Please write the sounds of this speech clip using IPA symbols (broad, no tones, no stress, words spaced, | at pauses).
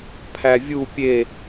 pʰævʲu pʲe